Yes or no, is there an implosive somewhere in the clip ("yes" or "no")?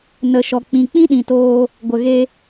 yes